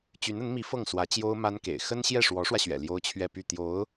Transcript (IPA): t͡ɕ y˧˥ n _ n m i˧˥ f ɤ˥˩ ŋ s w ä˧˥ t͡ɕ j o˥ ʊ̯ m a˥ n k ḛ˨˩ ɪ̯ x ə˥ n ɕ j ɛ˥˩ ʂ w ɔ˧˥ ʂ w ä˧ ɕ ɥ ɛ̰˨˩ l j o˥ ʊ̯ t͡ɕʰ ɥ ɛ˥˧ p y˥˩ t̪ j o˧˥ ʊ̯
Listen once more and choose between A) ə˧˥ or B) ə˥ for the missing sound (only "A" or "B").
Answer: A